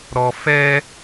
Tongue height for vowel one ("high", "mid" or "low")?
mid